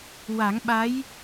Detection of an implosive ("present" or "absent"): present